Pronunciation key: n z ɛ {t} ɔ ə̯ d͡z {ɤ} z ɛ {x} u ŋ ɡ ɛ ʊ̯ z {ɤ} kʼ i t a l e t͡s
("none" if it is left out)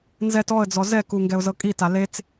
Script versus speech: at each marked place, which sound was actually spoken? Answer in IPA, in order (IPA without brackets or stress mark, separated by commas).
t, ɔ, k, ɤ